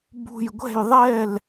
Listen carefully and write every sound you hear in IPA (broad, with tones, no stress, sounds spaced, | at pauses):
b ṳ˧˩ j ɡʷ ɛ̤˥˩ j ðˤ ɛ˥˩ l